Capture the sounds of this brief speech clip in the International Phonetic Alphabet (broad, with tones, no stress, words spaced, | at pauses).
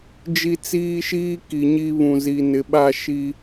d͡ʒi˦t͡siː˦ʃiː˦ ki˨ɲi˦βũ˨ zi˨nɪ˨ɓa˦˨ ʃi˦